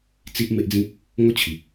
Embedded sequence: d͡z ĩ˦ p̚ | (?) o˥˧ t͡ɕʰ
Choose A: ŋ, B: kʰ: A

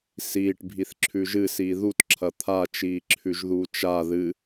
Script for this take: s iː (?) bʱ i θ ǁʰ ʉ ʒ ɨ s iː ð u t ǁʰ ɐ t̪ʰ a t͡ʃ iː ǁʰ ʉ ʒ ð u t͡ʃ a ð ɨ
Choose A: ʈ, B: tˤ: A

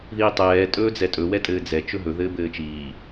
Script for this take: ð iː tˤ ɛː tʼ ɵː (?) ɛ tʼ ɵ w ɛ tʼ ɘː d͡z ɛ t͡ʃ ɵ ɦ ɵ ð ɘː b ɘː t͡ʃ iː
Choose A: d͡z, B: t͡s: A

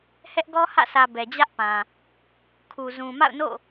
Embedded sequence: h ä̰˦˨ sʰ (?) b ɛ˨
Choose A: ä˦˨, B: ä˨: B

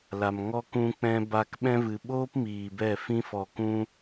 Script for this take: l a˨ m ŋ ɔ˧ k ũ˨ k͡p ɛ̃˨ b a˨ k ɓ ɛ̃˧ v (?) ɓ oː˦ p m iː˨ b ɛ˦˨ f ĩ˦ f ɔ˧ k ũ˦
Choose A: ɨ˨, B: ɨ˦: A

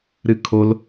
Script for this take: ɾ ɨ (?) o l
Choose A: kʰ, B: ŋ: A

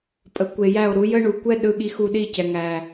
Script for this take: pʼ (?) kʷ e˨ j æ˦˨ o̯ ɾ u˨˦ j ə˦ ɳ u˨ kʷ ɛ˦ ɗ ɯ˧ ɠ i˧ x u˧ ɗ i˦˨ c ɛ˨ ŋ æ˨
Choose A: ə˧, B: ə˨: B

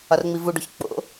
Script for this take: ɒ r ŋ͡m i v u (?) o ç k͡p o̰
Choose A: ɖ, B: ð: A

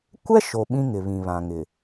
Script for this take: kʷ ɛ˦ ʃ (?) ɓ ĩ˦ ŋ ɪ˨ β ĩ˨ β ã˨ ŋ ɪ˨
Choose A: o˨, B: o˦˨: A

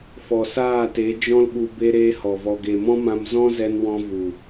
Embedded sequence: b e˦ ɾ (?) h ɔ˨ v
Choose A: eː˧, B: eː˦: B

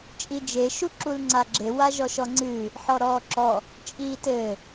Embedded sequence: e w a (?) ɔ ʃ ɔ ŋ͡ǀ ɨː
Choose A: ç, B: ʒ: B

